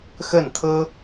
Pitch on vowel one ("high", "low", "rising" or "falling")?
falling